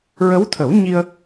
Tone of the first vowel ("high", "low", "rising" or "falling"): rising